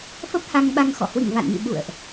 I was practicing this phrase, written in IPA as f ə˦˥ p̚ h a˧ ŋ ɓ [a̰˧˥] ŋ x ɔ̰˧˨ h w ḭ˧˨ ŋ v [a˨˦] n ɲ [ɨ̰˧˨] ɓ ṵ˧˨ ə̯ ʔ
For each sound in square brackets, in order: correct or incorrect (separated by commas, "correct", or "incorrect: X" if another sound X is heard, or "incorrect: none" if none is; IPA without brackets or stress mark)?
incorrect: a˧, incorrect: a̰˧˨, correct